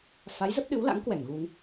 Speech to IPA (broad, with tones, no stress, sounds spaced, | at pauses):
f a˨˦ j z ə˦˥ p̚ ɗ ɨ˨˦ w l a̰˧˥ ŋ k w ɛ˧˩ ŋ ɣ u˧ ŋ